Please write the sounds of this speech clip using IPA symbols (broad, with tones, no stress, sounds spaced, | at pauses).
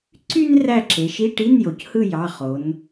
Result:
ǀ y˥ n r æ˦˨ ǁ e˩˧ ʃ i˧˥˧ ʈ i˧˥˧ n j o˩ c h ɯ˦˨ j ɑ˩˧˩ χ o˩˧ n